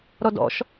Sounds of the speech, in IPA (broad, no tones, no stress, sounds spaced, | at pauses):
ɾ ɔ d ɔ̰ ʃ